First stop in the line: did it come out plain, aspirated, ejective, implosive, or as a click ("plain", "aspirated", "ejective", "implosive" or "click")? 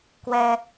plain